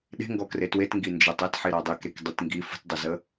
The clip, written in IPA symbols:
ɗ e̤ ŋ ɡ ɔ k r e t w e t ŋ ɡ i n d͡ʒ e tˤ ɛ t ħ i ɾ ɔ dˤ i k ɾ e k dˤ i t ŋ ɡ i f ə̤ t dˤ i z ə

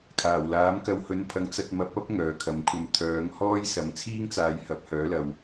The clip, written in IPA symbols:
kʰ aː˨˩ w l aː˨˥ m k ɐ˧ w h ɵ˨ n pʰ ɐ˨˥ ŋ t͡s ɐ˨ t̚ m ɐ˨˥ p̚ ɐ˥ p̚ ŋ œː˨ kʰ ɐ˨˧ m kʷʰ ɐ˧ m t̪ʰ œː˨˧ ŋ h ɔː˥ j s ɐ˨˥ m t͡sʰ iː˥ ŋ t͡s aː˨˧ j h ɐ˨˥ p̚ h œː˨˥ l ɐ˨ w

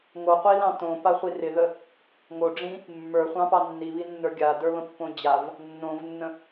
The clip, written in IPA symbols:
ŋ o qʷ i l ɑ̃ t õ p a χʷ i r ɪ ð ə | ŋ o ɖ͡ʐ ĩ | mː ə˞ χʷ ɑ̃ p ɑ nː i β i nː ə˞ ɡʲ a d ə˞ β ə̃ pː õ d͡ʑ a v | nː õ v nː ə̃

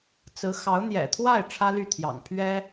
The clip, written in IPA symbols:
t͡s ɹ̩˧˥ x ɑ˧˥ ʊ̯ n̪ j ɛ̰˨˩ t̪ʰ w a˥˩ ɪ̯ ʈ͡ʂʰ ä˥ l y˥˩ t̪ʰ j ɑ̰˨˩ ŋ pʰ ɥ ɛ˥

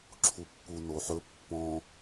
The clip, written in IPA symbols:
ǁʰ u pː u n o ħ ɵ pː ɔ̃

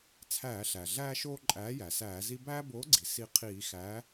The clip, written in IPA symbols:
t͡sʰ æː˧˩˧ ɬ æ˩ ɮ æː˦ ʃ oː˦ ǃʼ æː˨˥ j æ˩ s æː˧˩˧ z i˦ b æː˦ b oː˨˥ ɡ͡ǀ i˩ s i˧˩ qʰ iː˧˩˧ x æ˨˥

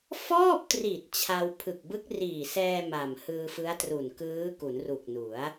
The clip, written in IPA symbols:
f ɔː˥˩ p̚ t r i˨˩ t̚ t͡ɕʰ a˧ w pʰ ɯ˨˩ k̚ b ɯ˦˥ k̚ r iː˨˩ s ɛː˧ m a˨˩ m h ɯː˧ f ɯ˦˥ a̯ t r u˨˩ n k ɯː˦˥ k u˩˦ n r u˨˩ k̚ n u˩˦ a̯

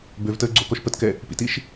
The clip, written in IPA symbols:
b ø v t əː ɡ͡ǀ o k ɔ ʃ p ə t k ɛ | p ḭ t i ʃ

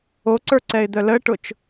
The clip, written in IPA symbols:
o ǀ ə˞ ǀ ɛ ɪ̯ d̪ œ l ə ʈ ʊ t͡ʃ

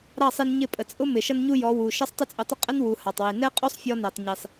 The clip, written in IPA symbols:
ɾ ɑ˦˨ sˤ i˧ n ɲ ɪ˦˨ pʼ ə˨ t͡sʼ ʊ˦ m ɪ˨ ʃ ʌ˦ n ɲ u˦ j ɔ˨˦ w u˨ ʃ ʌ˦ sˤ tˤ ɪ˦ t͡sʼ ʊ˧ tˤ ə˦ qʼ ə˦ n w u˨ h ɑ˨ tˤ w i˨ n ɛ˦ qʼ u˦ sˤ fʲ ɔ˧ n ɛ˨ tˤ ɲ i˨ sˤ

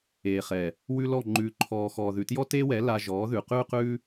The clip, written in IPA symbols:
eː˨ χ ɛ˨ | w ʉ˦ l ɔ˦˨ ŋ͡ǃ ʉː˨ ǃʰ ɔː˨ x ɔː˨ ð ʉ˨ t j ɔ˦ t eː˦ w ɛ˨˦ l a˧ ʒ ɔː˨˦ ð ʉ˨ q ʉː˦ q ʉː˦

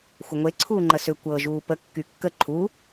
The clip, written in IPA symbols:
xʷ ə ŋʷ e ǀʰ uː ŋ͡ǃ ə s ʏ kʷ ɤ ʒ uː p ə kː y kː ə ǃʰ u

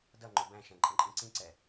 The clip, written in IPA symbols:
d ʌ ŋ͡ǃ u b æ̃ ʃ ɛ̃ ǃʼ ə̃ ǃʼ ĩ ǀ ĩ ǀ ɛ

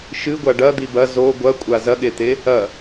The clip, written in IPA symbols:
ʃ ɨ ɡʷ a ɖ ɐ d̪ i b ɐ z o ɡʷ ɐ kʷʼ a z ɐ ɠ e t̪ e | ɐ

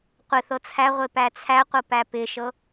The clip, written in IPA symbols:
qʷ ɪ θ ɤ t͡sʰ æ ʁʷ e p æ t͡sʰ æ qʷ ɤ p æ p ɪ ʃ ɤ

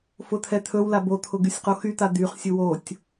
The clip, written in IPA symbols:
f ʊ t̪ʰ ɛ t̪ʰ ɵ w l a b o t̪ʰ ʊ ɡ y sʲ q o x y t̪ a d̪ y χ sʲ ʊ w o tʲ

